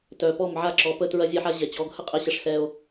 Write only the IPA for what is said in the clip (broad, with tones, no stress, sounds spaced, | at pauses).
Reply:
t œ˨ p ɔ˦˨ m ʕ a˦ ǁ ɔ˨ p ə˧ t ɹ ɐ˧ zʲ ɛ˧ ħ a˧ ʑ ɛ˨ t͡ɕ ɔ˨˦ ɡ h ə˦ qʼ ɛ˧ ɕ ɐ˧ ʂ s ɛ˧ o̯